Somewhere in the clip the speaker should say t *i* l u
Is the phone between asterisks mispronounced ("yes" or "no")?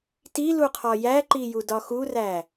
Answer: no